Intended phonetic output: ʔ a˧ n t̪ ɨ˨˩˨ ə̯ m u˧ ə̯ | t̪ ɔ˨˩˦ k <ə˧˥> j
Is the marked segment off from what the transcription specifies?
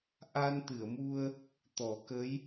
no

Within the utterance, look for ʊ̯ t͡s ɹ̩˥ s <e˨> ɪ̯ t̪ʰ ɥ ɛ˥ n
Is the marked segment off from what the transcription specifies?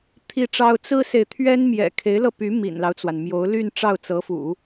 no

